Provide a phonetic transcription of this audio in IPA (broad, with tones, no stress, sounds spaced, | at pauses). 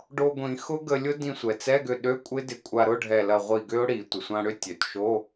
ɖ o˧ ɡʷ ĩ˨˩˦ x ʊ˦˥ ɡ ə˧ lʲ ʊ˦˥ d ĩ˧ sʷ ɛ˩ t͡s ɛ˧˥˧ ɡ ʏ˧˩ ɗ ø˧˥˧ kʷʼ ɪ˦˥ d ɪ˧˩ kʷʼ a˧ ɾ ʊ˧˥˧ ɖʱ ɛ˧˩ l ɐ˧˩ ʁʷ i˧˩ ɡ ʏ˦˥ ʊ̯ ɽ i˨˩˦ tʷ ə˩ sʷ ã˧ ɽ ʏ˦˥ tʲ ø˩ t ʃ o˧˥˧